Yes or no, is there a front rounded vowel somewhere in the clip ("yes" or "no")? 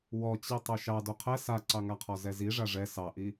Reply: no